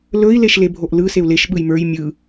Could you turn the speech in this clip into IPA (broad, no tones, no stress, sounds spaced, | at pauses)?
l ɵ i̯ l e ʃ l e bʱ o ʔ l ɯ s e u̯ l e ʃ ɓ ɯ j m ə˞ j mʲ ɯ